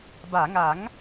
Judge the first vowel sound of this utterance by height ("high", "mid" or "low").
low